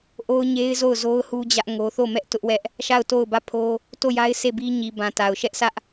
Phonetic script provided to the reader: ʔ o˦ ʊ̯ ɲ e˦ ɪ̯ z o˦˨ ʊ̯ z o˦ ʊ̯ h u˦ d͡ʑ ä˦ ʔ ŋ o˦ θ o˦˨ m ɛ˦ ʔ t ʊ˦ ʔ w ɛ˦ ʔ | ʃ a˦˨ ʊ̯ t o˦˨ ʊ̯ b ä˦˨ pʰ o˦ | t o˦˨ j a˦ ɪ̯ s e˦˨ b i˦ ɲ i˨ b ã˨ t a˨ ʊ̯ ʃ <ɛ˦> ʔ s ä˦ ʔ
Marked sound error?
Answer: no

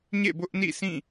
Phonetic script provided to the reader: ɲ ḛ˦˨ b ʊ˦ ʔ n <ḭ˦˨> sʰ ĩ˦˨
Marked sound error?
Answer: no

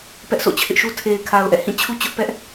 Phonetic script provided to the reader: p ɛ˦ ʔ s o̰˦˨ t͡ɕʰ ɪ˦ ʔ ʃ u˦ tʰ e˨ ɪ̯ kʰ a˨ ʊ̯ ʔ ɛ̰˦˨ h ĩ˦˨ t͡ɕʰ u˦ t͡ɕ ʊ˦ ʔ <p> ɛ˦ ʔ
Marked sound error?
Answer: no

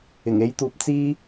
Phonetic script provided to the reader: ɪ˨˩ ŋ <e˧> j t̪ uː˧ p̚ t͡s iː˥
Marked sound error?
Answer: yes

